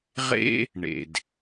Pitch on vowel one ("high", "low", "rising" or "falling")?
high